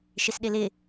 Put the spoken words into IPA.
ʃ ɪ s ɗ ɪ l ɪ

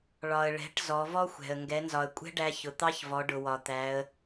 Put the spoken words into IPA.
ɭ ɒ˩ ə̯ ɭ ɛ̤˩˧ ʈ z ɔ˩˧ v ɔ˥ xʷ ɛ̤˩ ə̯ ŋ ɡ ɛ˩˧ n z ɒ˩ ə̯ kʷʼ ɛ̤˥ ɖ æ˧ ç ʊ˩ t̪ ɑ˧˥ ç v ɔ˩˧ ɖ ʊ˩ w ɒ˩ t̪ æ˩˧ ə̯

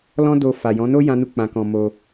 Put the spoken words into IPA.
l ɔ̃˦ d o˧ f a˨ j ɔ̃˨˦ n o˦ j ã˦ n u˦ k͡p ã˧ k ɔ̃˧ m o˧

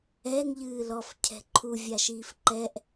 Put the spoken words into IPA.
ɛ ŋ ʎ ɨː l ɔ f cʰ ɛ̤ ǃʰ u vʲ a ʃ iː f ǃ ɛ ʔ

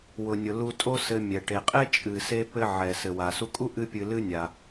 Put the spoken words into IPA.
w ʊ˩ nʲ ʊ˩ l u˧ tʼ o˥ s ɘ˧ mʲ ɛ˩ ʈ e˩ qʼ e˥ t͡ʃʼ ɨ˩ s e˥ p ɘ˥ ʕ ɛ˩ s ɘ˩ w a˩ s u˧ kʼ u˥ ʔ ɨ˥ pʲ ɨ˧ l ɨ˥ nʲ a˩

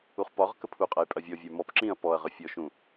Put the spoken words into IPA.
u χ p ɒ ʁ k ə pʰ u qʼ ɐ j pʼ ɐ vʲ ɔ vʲ ə˞ m ɔ p ǁ ĩ ɐ̯ p ɔ ɐ̯ ʁ ə fʲ ɔ ʃ ũ

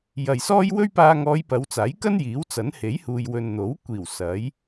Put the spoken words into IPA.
j ɐ˨ j s ɔː˥ j w ɵ˥ ɥ p aː˧ ŋ ɔː˨˧ j p ɐ˨˧ w t͡s aː˨˥ j k ɐ˥ n j iː˨˥ w t͡s ɐ˨˥ n h e˨˥ j h uː˨ j w ɵ˨ n n̪ o˨˥ w kʷ iː˨˩ w s ɐ˨˥ j

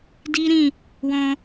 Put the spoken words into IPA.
d i˦ ɾ ĩ˦˨ | w ɔ̃˧

